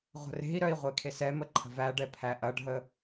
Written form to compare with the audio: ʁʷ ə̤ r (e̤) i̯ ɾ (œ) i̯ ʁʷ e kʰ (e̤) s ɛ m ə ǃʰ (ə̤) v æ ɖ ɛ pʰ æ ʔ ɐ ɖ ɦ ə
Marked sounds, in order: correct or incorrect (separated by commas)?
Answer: correct, correct, incorrect, correct